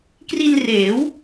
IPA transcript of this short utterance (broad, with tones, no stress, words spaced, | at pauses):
kri˧nreː˩˦w